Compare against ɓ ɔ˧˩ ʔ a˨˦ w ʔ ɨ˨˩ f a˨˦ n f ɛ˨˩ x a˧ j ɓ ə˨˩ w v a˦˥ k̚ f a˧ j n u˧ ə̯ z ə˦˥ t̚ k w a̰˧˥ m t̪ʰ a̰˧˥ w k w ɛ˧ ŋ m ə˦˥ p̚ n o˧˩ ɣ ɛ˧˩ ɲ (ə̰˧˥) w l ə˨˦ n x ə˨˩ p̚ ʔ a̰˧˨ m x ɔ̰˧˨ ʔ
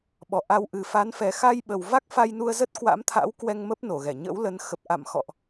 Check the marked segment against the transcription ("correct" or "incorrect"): correct